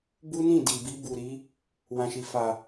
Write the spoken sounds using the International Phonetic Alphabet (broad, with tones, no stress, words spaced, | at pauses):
bu˦nĩ˦˨di˨bi˧ bu˨ɾi˨˦ | wã˨ʃi˨ fa˨